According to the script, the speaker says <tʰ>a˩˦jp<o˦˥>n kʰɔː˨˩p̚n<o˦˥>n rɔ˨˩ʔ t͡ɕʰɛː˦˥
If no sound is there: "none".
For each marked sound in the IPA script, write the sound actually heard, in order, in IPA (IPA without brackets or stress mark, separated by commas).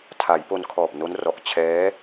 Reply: tʰ, o˧, o˦˥